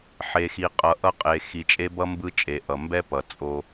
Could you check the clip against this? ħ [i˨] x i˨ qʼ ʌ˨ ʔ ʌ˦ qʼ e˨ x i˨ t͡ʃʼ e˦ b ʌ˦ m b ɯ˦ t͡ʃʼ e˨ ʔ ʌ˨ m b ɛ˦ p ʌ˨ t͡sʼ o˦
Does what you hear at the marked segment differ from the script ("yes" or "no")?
yes